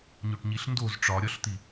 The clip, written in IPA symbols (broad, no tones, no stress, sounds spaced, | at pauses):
ɲ o ʈ ɲ i ɬ n d o z ʈ͡ʂ ɒ ɾʲ ɒ ɬ t̪ i